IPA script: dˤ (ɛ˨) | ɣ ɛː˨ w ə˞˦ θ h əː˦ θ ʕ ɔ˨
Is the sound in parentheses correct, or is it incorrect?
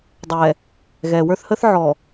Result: correct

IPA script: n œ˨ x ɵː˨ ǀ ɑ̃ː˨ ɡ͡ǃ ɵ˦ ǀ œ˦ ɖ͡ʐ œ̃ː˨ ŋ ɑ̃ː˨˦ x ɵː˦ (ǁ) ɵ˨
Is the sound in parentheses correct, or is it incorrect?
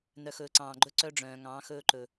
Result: incorrect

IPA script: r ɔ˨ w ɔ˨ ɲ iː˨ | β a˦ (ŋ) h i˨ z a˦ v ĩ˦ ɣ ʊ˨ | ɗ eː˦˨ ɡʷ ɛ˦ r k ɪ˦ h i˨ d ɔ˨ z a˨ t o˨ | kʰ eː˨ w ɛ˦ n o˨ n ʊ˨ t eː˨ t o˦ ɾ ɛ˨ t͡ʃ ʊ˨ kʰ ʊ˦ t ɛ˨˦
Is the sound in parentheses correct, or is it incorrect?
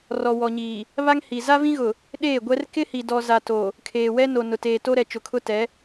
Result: correct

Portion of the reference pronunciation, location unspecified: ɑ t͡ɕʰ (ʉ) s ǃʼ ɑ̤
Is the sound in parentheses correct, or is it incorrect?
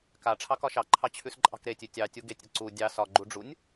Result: correct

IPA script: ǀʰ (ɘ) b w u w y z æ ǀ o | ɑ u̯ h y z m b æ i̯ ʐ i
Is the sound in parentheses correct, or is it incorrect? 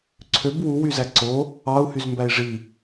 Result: incorrect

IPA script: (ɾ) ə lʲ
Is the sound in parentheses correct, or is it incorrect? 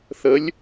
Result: incorrect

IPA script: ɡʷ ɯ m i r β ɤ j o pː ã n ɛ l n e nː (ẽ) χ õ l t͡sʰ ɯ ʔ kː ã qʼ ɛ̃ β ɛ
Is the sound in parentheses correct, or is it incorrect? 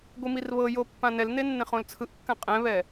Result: correct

